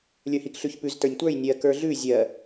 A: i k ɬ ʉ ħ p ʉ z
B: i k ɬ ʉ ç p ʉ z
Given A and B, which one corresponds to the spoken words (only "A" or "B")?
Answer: B